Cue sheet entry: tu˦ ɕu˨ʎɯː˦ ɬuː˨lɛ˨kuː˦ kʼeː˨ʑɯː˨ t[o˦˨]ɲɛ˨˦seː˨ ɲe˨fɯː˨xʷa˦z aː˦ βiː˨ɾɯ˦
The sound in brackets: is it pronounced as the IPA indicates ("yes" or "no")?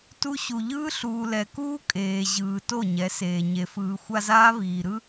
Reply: yes